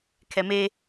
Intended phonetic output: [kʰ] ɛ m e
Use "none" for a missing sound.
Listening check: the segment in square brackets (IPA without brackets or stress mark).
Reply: kʰ